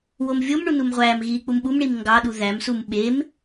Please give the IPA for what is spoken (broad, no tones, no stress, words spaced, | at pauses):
womvʲomɳu numʁʷæːmɣiː k͡pumɓumɳim ŋɡɑɗu ðæmsum ɓem